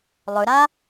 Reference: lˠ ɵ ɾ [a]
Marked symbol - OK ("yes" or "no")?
yes